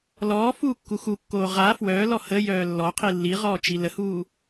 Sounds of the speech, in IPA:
lɔː fuːkːuxukːoː ʁa fwœːlɔ həjœː lːɔ qʰilːiʁɔː t͡ʃiləhuː

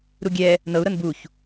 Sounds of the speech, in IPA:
ɾuɡʲɛ | nɤu̯ ɾɤnbuç

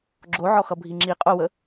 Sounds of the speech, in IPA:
ɡ͡ǁoʕɔxʌ bʱiŋ͡ǁi qʼowə

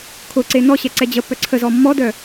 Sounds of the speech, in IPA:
kʰʊǀe nɔɕɛ ǀɛd͡ʑəpːœ ǀʰəzɔ mːɔdœ

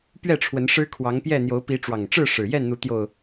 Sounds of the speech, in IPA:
pɥɛ˥˨ʈ͡ʂʰwə˨˦nʂɻ̩˦ kʰwɑ˨˦ŋpjɛ˥˨ n̪jo˨˦ʊ̯pi˨˦ʈ͡ʂwɑ˨˩ŋʈ͡ʂɻ̩˥˨ ʂɻ̩˨˩ jɛ˥˨nn̪u˨˦t̪jo˨˩ʊ̯

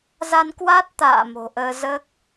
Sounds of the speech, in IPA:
za˧nkwa˦˥t̚t̪a̰ː˧˨ mo̤˨˩ʔəː˧zəː˦˥k̚

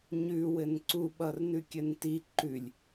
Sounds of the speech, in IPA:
ɲʉ wɘnǀuɓʌrnʉ kʲɘnti ǃʉlʲ

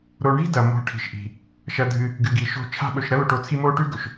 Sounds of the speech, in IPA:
ɾo˨ɳi̤˦dɐ˩ mo̤˨ʈʰi̤˩ʃ ʔi̤˩ | ʃɐ˨dʱɨ˨ | ɡɨ˨ɡi˩ ʃo̤˦t͡ʃʰa̤˥ ɓɵ˨ʃ ɾɐ˦lo˨ʈo˨ t͡sʰi˦mo˦ʈʉ˥ ɡɵ˩ʃ

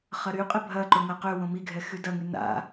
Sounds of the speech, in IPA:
χɐɾyqʼɪ bʱɐ ǃʊŋɐ qøwõ miɡʱɛ xydɐŋy na̰

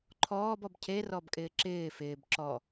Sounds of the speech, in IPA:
ǃʰɔːb ɔbcʰe rɔbkʼɪːǁɪː fɪːb ǁɔ

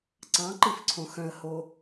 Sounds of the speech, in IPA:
ǀɑ̃ǃifǀʰõ xœ̃ə̯ho

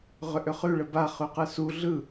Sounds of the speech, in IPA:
ʁʏʔʏχʉ ɭəba χʉqɯsu ɮɯ

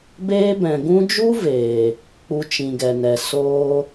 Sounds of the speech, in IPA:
beː˦bɛ̃˨ ɡũ˧d͡ʒu˦ veː˨ | k͡pu˧t͡ʃĩ˨ɡɛ˨nɛ˨ soː˦

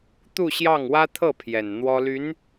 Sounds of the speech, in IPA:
t̪u˥˧ɕjɑ˥˩ŋ wä˥t̪ʰɤ˥˩ pʰjɛ˨˩nn̪wɔ˥ ly˧˥n

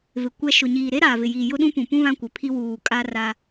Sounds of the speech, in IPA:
vɪ˨kʷɛ˦ ʃʊ˨ɲiː˨ ɾe˦ɾaː˨vɪ˨jiː˨ jʊ˦ɗũ˦pũ˨ pũ˦ βã˦kʷɪ˨pʰi˦ wuː˨kʼa˦ra˦

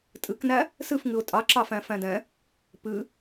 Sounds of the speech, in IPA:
tʼɨknæ | sɨfŋɨʊ̯ tʼɑǁɑ fæ̃fæ̃dɛ̃ | pɨ

